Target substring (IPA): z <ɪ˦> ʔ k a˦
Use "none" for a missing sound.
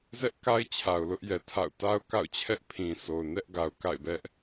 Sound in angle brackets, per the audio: ɛ˦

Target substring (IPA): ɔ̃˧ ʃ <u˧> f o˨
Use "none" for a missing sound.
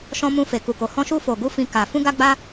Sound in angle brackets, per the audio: u˧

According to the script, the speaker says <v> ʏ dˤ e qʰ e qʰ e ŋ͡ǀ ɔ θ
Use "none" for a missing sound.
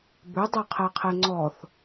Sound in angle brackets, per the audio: b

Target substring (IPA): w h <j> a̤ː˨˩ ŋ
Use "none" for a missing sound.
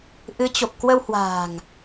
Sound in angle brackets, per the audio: w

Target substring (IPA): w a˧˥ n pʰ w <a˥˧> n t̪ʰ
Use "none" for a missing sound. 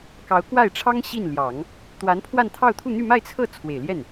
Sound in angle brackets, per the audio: a˥˧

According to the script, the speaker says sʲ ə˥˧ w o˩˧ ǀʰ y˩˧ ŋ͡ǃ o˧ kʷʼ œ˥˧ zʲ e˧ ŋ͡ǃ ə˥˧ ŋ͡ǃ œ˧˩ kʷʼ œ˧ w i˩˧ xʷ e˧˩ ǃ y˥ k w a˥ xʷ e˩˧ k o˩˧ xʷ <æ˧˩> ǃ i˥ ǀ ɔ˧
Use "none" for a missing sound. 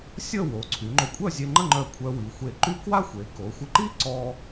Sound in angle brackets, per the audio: ə˧˩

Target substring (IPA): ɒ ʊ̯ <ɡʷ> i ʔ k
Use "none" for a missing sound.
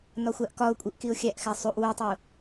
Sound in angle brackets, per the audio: kʷʼ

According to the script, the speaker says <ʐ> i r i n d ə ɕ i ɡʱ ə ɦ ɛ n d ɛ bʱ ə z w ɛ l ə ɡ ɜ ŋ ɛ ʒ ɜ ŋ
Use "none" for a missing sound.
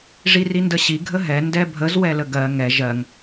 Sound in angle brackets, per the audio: ʐ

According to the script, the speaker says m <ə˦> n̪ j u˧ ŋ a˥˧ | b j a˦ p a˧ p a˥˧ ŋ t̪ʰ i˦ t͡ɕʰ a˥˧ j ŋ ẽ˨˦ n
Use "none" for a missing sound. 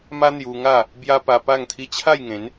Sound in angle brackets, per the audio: a˦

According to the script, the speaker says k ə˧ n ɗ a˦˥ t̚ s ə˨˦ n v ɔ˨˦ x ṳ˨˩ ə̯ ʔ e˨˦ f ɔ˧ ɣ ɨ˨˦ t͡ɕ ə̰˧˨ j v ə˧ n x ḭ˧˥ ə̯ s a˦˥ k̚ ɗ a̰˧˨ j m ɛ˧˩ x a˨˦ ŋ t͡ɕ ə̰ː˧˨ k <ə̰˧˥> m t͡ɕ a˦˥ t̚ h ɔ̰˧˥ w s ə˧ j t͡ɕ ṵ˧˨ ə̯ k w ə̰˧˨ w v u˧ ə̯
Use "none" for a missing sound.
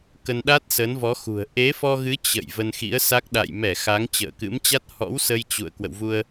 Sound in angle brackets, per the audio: ɨ̰˧˥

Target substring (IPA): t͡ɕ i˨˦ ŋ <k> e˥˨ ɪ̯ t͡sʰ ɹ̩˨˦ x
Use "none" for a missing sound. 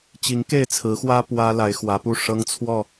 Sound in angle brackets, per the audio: k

